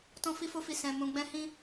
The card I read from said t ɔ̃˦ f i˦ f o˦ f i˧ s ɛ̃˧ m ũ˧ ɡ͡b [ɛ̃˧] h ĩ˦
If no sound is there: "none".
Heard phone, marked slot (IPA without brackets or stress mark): ɛ̃˦